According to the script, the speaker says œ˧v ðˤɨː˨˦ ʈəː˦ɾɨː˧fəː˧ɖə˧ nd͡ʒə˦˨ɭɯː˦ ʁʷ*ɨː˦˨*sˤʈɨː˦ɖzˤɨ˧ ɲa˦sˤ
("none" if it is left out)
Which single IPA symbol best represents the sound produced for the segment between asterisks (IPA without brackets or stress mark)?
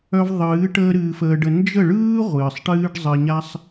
ɨː˨